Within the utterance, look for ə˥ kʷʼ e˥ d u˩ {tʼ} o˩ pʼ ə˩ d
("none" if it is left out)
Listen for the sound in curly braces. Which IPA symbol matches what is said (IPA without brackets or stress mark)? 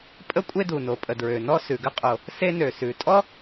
n